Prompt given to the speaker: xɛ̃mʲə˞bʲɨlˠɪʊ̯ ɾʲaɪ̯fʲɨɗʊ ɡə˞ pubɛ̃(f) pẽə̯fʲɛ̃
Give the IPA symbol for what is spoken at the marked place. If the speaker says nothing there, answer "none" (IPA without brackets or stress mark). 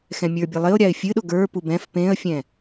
f